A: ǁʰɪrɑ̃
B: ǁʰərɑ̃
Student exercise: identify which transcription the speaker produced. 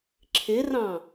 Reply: A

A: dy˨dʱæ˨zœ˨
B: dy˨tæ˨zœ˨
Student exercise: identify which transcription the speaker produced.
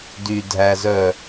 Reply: A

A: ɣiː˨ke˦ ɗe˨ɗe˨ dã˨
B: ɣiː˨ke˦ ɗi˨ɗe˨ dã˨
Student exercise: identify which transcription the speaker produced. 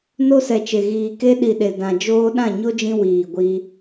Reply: B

